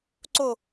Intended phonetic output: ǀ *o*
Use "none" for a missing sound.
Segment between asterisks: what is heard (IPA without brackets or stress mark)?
o